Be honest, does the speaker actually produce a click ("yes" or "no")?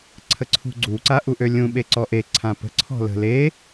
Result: yes